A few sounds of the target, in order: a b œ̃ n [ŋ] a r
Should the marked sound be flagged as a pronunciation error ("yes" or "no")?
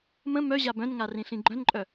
no